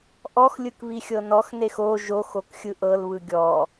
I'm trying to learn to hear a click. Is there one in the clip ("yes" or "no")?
no